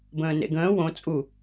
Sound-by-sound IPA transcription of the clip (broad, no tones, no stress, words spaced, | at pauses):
bə̃ːnḛɡə̃ː wõ t͡sʼu